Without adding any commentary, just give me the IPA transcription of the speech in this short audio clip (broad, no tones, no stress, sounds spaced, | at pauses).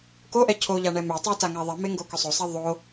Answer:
k o ʔ ɛ cʰ o ʎ a ɳ ɛ m ʏ tˤ u t a ŋ a ðˤ i m e ŋ ɡ o k ʏ sˤ o sˤ i ðˤ o